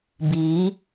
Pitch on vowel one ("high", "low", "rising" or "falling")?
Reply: rising